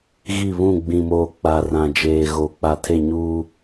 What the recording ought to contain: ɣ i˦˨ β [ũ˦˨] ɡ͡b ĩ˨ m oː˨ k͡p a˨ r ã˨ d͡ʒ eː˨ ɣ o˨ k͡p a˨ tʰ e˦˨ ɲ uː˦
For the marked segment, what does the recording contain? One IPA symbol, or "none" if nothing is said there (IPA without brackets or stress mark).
ũ˦˨